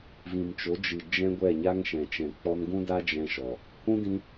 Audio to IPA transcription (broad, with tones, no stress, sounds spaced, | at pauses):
v ĩ˨ m t͡ʃ o˨˦ d͡ʒ ɨ˨ d͡ʒ ɛ̃˦ ɡʷ ɛ˦˨ ɲ a˦ ŋ ʃ ɛ̃˨ t͡ʃ ɛ̃˨ k͡p ɔ˧ n ɡ ũ˦ d a˦ d͡ʒ ɛ̃˦ ʃ ɔ˨ | h ũ˦ d ĩ˧